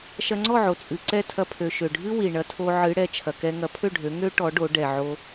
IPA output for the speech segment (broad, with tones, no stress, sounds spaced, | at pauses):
ʃ ɐ˧ ŋ͡ǀ ɔ˥˩ ʕ o˩ t͡sʼ ɨ˩ ǀ ɛ˥˩ tʰ ɐ˧ pʰ ø˩ ʃ ø˩ ɖʱ ɨ˥ w i˩ ɳ ɐ˩˥ tʰ o˧ ʕ ɨ˩˥ ɽ ɛ˩ t͡ʃʰ ɐ˩ k ɛ˧ ŋ ɐ˩˥ pʰ ø˥˩ ɖʱ ø˩˥ ŋ ø˥ ʈ ɔ˩˥ ɖ o˩˥ ɖ ɛ˩ ʕ o˧